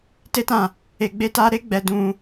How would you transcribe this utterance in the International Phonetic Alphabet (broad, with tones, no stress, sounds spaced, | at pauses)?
t e˦ t ã˦˨ | e˧ ɡ͡b e˦ t a˦ ɾ e˦ ɡ͡b ɛ˧ d ũ˧